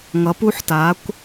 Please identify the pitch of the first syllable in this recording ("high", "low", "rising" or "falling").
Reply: rising